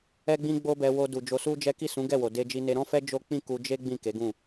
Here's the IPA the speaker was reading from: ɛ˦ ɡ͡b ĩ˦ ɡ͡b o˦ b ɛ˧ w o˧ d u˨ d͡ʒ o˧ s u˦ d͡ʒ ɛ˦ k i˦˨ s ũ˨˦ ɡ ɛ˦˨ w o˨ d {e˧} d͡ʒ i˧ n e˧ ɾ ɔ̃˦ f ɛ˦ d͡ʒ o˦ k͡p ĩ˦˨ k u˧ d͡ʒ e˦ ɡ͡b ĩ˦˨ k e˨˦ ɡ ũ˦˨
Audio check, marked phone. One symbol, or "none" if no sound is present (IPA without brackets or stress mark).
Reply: e˧